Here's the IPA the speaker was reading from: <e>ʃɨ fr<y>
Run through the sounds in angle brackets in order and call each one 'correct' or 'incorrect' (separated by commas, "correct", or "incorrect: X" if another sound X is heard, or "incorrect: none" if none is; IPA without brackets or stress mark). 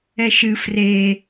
incorrect: ɛ, incorrect: e